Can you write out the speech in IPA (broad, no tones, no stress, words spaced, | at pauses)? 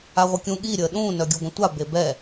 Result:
aʁʷəkʲũ ɠi ɾʲəːɗũː nœɡʲuɡʷə̃tʷa bebɛ